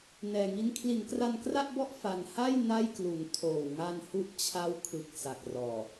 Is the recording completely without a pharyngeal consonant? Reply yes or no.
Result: yes